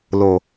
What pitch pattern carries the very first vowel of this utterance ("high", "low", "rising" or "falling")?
low